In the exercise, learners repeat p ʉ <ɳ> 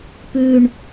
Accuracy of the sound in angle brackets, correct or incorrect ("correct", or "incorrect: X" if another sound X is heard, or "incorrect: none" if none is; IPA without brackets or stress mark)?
correct